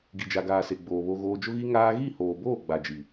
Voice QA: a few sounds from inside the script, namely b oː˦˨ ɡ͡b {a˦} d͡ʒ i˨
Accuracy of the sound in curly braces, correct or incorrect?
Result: incorrect